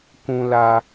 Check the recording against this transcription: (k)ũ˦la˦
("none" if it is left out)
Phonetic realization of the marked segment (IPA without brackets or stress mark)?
k